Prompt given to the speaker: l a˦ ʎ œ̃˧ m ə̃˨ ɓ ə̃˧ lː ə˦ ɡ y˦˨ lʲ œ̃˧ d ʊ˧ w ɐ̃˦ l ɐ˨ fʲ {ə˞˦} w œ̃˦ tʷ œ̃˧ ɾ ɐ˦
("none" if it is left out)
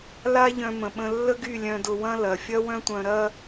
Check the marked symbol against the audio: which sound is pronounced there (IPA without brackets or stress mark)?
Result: ɐ˦